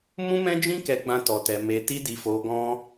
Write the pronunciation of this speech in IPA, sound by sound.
m ũ˦ m ɛ̃˦ d͡ʒ ĩ˦ k ɛ˧ ɡ͡b ã˦ t ɔ˧ t ɛ˧ m e˧ t i˦ d i˧ f o˧ ɡ ɔ̃˦

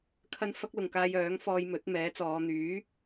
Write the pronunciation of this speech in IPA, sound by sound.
kʰ ɐ˥ n f ɐ˥ k̚ l ʊ˨ ŋ k aː˧ j œː˨˥ ŋ f ɔː˧ j m ɵ˨˥ t̚ m ɛː˨˥ t͡s ɔː˨˧ n̪ yː˨˥

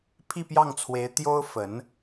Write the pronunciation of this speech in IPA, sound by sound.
pʰ i˥˧ p j ɑ˥˩ ŋ t͡sʰ w e˧˥ ɪ̯ t̪ j o˥ ʊ̯ f ə˧˥ n

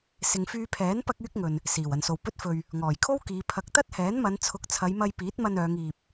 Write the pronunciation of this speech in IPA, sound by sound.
s ɪ˨ ŋ f yː˧ pʰ ɛː˨˥ n p ɐ˥ k̚ yː˥ k̚ ŋ ɵ˨ n | s iː˨˩ w ɐ˨˩ n s o˨˩ w p ɵ˥ t̚ f ɵ˧ ɥ | ŋ ɔː˨˩ j kʰ o˥ w k iː˨˧ pʰ ɐ˨˥ k̚ t̪ ɐ˥ t̚ h ɛː˨˥ n m ɐ˨˧ n t͡sʰ ʊ˨˥ k̚ t͡sʰ ɐ˨˧ j m ɐ˧ j p iː˨˥ t̚ m ɐ˧ n œː˨˧ ŋ iː˨ p̚

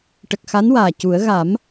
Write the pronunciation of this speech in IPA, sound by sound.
ʈ ə˨˩ k̚ x a˧˥ n w aː˨˩ c u˨˩˦ ə̯ ɣ a˨˩˦ m

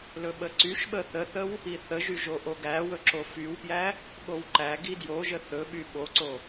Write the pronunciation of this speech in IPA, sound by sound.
l ɵ ɓ ə ǀ y ʃ ɓ ə θ ə θ ə w | i θ ə ʒ y ʒ o ʔ o ɡ æ w ɵ ǁ o f y w p j æ | ɠ o w ǃ æ ɡ i d j o ʒ ə θ ɵ ɓ y ɓ o ǀ o

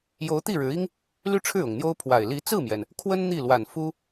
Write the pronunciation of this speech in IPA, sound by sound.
j o˧˥ ʊ̯ t̪ i˥˩ ɻ ɻ̩˧˥ i˥ ŋ | l y˥˧ ʈ͡ʂʰ ɻ̩˥˩ ʊ˨˩ ŋ n̪ j o˥ ʊ̯ pʰ w a˨˩ ɪ̯ l i˧˥ t͡s ɹ̩˥˩ m j ɛ˩ n | kʰ w ə˥ n n̪ i˥˩ l w a˨˩ n f u˥

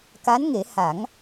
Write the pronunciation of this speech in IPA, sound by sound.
k a˧˥ n ŋ e˨˩˦ h a˨˩˦ ŋ

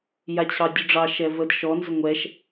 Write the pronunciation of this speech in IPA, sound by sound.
j a t͡ɕʰ ɑ dʲ u ɖ͡ʐ ɑ ʃ ɛ v ə d ʃ ɔ n z ʏ ŋʷ ɛ ʃ

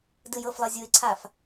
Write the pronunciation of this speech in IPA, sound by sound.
d ɯ j ɤ f lˠ ɤ zʲ u ɪ̯ ǀʰ a f

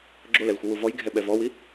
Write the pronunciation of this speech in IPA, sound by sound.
ɡ͡ǁ o l ɛ l xʷ ɯ w u v ɔ j ɡʱ ɛ ɓ ɛ v ɔ w i

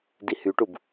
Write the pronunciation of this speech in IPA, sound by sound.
d i h y ʈ u b

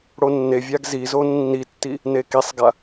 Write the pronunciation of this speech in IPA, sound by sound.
ɽ o nː e vʲ a ɡ z i z o nː i tː i | n e k i sˤ ɡ a

